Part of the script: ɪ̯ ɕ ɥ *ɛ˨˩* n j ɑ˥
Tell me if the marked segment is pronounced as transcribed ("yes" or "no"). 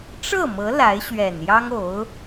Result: yes